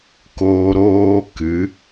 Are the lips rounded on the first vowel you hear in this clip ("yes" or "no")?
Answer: yes